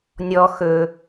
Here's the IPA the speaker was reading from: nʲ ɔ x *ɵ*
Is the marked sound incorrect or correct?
correct